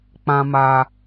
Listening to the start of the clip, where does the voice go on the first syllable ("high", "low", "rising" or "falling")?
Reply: low